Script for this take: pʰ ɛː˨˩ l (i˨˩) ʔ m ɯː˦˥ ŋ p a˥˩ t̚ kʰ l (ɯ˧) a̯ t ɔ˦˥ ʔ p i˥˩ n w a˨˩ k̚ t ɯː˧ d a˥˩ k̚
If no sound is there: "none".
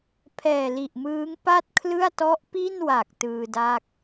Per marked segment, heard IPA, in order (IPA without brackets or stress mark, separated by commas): i˨˩, ɯ˥˩